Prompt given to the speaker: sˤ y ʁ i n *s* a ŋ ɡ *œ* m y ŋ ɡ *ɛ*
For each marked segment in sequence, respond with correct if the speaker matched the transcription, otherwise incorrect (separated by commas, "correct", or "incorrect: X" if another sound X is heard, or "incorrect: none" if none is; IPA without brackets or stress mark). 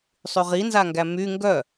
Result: incorrect: z, incorrect: æ, incorrect: œ